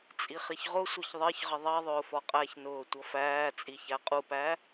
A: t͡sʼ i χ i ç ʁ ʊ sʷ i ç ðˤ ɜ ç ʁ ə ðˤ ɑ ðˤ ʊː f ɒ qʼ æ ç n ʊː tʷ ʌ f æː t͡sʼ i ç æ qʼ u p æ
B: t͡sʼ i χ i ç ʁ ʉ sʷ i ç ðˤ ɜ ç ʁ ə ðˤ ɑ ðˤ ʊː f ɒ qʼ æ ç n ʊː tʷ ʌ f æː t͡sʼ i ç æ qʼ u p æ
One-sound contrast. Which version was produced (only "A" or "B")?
A